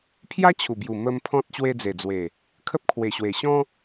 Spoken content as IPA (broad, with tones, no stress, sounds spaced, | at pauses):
pʰ j a˦ t͡ɕʰ u˨˩ b j u˨˩ m ə˧ m pʰ ɔ̃˦ t̚ ɕ w e˧ d͡z e˨˩ d͡z w e˨˩ | kʰ ə˦ p̚ kʰ w e˨˩ ɕ w e˨˩ ɕ ɔ̃˦